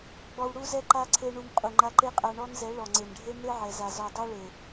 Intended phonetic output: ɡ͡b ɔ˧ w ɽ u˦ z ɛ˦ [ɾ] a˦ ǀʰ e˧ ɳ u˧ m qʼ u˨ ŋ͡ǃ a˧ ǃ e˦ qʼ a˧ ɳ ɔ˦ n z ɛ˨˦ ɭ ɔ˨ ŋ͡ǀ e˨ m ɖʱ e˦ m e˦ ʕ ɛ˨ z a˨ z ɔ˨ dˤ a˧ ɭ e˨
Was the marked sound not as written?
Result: yes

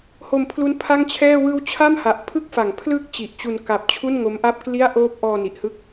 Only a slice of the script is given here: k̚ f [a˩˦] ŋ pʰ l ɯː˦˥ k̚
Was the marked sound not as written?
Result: no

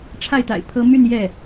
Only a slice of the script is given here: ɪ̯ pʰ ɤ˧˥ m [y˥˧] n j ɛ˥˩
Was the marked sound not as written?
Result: no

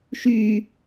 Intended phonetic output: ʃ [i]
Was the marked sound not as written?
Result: yes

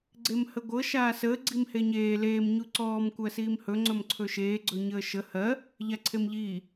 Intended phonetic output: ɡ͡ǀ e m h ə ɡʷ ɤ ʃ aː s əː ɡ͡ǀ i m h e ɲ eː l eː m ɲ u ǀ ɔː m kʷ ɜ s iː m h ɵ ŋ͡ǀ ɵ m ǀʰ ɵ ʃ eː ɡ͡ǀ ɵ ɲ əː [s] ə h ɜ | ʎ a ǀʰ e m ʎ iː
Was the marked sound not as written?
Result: yes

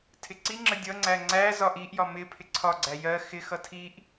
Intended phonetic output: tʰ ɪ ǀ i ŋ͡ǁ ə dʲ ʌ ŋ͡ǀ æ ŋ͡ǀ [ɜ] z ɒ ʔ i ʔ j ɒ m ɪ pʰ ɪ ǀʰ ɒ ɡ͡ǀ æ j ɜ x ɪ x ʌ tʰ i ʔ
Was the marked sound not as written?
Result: yes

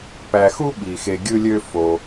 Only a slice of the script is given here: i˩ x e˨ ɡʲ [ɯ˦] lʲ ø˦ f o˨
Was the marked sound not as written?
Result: no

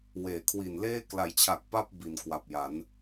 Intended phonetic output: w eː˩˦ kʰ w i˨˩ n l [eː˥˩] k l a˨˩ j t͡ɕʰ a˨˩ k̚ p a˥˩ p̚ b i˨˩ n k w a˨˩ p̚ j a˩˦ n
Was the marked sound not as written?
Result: no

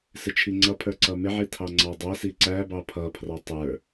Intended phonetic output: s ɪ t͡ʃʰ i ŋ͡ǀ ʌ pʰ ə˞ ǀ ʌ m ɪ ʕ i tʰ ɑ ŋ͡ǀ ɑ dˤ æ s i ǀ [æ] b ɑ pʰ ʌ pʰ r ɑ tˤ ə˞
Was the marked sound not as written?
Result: no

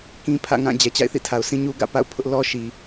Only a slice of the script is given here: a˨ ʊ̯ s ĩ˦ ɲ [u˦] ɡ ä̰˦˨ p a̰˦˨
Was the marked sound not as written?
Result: no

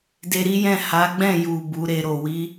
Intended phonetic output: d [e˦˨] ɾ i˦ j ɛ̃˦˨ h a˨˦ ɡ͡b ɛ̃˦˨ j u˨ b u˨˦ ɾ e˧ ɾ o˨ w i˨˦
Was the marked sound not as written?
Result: yes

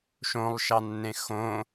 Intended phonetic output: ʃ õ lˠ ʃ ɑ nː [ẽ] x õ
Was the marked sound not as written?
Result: no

